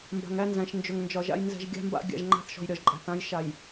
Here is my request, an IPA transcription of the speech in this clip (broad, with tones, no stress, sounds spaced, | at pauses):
m b a̤˨ ŋ æ˦ n z æ̃˨ ʃ n d͡ʒ ɵ˨ ŋ n d͡ʒ ɒ˨ ʒ a̰˦ j n z ɛ̤˨ ʒ ɡʲ a̤˦ m b a̰˦ ɡʲ a̰˨ ʒ ŋ͡ǃ a̤˦ θ ʃ ɔ̤˨ j ɾʲ ɒ˨ ʒ ǃʼ æ̤˨ θ ã˦ j ʃ a˨ j